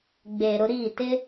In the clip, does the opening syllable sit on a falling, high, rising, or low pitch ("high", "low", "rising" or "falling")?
low